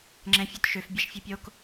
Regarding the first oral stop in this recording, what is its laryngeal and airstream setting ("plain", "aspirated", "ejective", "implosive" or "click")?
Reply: click